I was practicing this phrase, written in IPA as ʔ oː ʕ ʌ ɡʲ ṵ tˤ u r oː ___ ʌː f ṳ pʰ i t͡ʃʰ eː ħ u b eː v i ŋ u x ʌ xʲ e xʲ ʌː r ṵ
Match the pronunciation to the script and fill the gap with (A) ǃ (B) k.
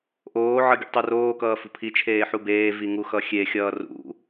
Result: B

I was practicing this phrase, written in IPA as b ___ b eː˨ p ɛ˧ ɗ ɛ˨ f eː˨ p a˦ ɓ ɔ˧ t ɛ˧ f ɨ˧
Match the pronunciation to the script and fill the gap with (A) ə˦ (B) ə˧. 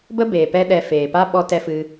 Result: A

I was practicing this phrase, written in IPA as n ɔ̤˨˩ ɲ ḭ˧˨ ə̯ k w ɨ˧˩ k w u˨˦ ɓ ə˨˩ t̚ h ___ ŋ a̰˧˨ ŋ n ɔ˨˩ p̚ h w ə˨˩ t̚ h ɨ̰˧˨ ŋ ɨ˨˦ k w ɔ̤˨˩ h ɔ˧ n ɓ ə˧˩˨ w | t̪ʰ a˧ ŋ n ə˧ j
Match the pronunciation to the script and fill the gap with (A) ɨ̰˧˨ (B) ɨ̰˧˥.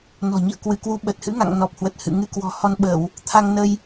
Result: B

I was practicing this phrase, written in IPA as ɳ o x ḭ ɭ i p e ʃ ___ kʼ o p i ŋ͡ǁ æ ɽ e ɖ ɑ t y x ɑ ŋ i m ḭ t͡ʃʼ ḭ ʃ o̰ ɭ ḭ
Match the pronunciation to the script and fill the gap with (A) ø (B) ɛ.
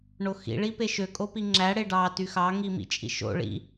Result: A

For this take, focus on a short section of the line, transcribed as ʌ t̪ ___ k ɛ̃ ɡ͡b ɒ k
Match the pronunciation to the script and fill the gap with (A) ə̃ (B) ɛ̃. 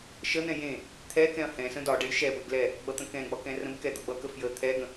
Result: A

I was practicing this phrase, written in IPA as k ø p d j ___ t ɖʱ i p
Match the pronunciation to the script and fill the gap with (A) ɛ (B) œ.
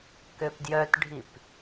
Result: B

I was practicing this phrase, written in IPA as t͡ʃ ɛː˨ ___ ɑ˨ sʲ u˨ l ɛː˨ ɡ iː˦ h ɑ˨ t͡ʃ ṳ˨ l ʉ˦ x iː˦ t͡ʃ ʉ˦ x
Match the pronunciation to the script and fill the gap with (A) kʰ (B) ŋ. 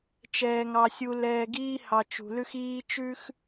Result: B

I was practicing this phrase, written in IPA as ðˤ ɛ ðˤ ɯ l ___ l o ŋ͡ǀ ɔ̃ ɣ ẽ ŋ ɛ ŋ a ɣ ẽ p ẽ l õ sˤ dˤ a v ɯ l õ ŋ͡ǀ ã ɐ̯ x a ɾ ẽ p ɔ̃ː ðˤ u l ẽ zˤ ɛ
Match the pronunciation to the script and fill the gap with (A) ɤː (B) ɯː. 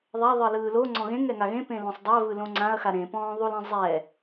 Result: B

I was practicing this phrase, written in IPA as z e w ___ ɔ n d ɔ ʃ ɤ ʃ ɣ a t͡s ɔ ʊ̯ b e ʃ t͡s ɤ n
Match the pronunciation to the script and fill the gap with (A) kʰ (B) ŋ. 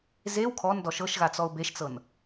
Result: A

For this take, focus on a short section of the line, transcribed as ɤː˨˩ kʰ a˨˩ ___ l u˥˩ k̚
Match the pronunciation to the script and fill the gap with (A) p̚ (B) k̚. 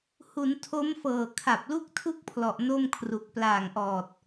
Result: A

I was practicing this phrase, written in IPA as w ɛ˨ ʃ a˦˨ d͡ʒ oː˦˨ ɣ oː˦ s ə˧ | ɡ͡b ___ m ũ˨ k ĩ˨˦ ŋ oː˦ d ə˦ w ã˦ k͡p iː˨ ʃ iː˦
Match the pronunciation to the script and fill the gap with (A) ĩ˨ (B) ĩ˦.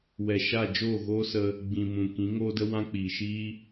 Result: A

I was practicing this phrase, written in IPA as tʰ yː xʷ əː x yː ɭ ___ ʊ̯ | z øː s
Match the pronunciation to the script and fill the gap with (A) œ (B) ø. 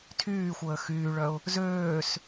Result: A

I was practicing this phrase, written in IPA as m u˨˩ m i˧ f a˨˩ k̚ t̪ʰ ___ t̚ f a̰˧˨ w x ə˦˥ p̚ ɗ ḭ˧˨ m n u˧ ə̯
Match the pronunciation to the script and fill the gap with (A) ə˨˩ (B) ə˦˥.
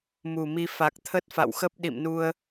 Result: B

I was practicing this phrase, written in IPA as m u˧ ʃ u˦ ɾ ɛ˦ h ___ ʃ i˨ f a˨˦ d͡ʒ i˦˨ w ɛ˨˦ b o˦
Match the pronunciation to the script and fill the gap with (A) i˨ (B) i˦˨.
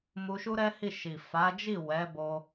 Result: B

